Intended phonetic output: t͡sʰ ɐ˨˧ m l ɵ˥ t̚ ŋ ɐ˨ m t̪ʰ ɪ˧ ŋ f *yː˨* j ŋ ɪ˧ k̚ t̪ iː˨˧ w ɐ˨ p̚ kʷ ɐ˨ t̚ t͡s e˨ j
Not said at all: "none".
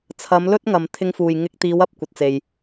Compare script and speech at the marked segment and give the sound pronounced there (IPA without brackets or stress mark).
uː˨